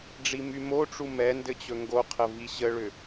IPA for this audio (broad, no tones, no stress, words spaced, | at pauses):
ɖ͡ʐimymoʈ͡ʂu mɛ ndɘt͡ɕɵŋɡoqʰə viɕəɭʏ